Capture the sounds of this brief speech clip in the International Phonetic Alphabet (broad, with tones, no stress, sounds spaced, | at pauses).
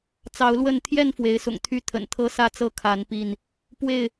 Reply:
t͡s ɑ˨˦ ʊ̯ l w ə˥˨ n t̪ʰ j ɛ˥˨ n f w e˨˦ ɪ̯ s ʊ̰˨˩ ŋ t̪ʰ y˥˨ t̪ʰ ə̰˨˩ n t̪ʰ ɤ˦ s ä˥˨ t͡s ɤ˥˨ kʰ a˨˦ n p i˥˨ n | p w e˥˨ ɪ̯